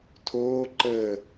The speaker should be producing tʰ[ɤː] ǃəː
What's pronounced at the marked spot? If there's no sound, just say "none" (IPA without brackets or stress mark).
oː